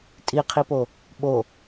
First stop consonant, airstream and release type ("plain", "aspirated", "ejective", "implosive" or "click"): ejective